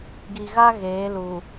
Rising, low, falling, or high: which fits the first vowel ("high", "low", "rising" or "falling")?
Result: low